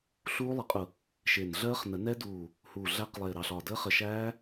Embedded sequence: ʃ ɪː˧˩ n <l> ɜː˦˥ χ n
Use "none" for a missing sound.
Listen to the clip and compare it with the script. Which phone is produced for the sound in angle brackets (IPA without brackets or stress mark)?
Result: ɮ